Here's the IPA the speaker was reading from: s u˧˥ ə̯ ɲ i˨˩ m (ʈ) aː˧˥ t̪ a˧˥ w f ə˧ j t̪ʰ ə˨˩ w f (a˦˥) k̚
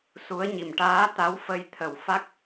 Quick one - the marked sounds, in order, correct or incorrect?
correct, correct

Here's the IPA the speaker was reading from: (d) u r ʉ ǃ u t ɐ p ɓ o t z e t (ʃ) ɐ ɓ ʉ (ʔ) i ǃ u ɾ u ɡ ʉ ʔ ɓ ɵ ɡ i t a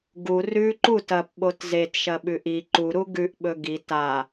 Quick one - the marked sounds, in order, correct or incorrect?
incorrect, correct, correct

